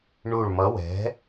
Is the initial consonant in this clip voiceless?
no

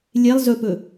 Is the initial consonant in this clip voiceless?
no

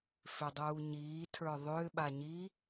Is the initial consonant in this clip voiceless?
yes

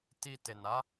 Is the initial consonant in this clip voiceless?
yes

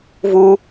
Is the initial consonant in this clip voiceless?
no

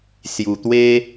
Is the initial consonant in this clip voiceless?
yes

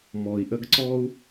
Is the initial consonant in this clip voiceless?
no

